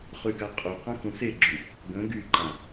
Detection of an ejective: present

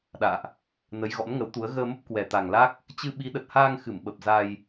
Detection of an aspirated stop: absent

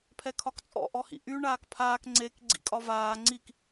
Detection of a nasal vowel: absent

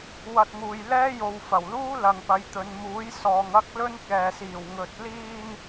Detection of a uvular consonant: absent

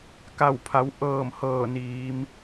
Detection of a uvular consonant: absent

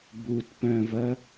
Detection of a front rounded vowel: present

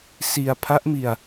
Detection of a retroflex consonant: absent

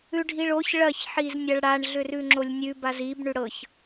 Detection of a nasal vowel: absent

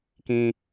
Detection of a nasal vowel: present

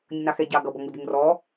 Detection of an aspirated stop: absent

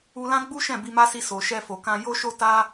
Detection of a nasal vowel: present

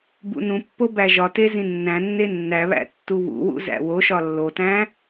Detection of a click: absent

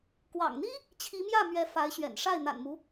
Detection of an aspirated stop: present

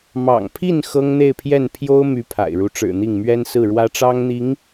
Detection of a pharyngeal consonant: absent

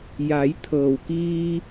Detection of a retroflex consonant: absent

